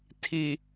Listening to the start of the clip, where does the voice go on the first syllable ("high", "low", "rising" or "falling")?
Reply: low